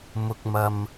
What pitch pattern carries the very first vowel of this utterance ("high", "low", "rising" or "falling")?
low